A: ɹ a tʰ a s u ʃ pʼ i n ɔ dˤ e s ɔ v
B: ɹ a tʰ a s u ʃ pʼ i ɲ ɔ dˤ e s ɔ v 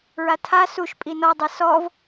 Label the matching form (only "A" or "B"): A